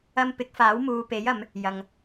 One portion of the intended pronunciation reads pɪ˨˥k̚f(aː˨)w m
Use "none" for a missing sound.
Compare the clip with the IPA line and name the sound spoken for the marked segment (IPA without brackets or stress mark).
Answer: aː˨˥